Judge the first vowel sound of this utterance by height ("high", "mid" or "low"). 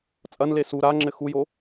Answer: low